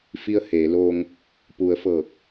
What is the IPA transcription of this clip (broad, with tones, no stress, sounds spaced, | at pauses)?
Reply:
f i˧˥ ə̯ h eː˩˧ l oː˧ ŋ | p u˩˧ ə̯ f ɤː˧˩ k̚